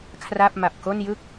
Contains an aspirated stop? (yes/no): yes